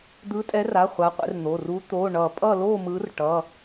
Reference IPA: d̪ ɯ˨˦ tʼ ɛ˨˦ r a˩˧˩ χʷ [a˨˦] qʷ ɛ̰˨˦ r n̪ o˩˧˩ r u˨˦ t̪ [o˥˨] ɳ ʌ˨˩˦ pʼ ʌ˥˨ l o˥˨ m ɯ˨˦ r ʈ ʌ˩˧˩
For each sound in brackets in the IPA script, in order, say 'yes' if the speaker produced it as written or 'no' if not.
yes, no

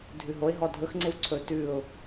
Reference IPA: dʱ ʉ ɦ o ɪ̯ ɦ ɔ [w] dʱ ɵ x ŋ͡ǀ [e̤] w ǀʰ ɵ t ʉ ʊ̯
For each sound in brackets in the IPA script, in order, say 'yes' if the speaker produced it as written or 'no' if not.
no, no

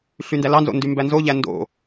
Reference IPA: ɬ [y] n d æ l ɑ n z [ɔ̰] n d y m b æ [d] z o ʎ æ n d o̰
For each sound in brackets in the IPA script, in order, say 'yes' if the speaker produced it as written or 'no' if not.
yes, no, no

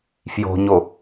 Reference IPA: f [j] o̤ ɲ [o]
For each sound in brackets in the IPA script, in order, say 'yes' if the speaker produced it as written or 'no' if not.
yes, yes

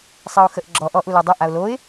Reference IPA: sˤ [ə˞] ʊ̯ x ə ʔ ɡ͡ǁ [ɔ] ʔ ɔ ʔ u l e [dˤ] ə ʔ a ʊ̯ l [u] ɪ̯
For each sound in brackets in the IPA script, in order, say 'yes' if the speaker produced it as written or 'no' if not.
no, yes, yes, no

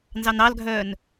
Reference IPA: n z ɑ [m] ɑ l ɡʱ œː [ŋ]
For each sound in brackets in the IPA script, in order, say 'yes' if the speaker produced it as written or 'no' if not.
no, no

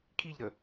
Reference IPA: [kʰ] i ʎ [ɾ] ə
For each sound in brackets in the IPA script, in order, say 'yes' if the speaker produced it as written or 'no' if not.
yes, yes

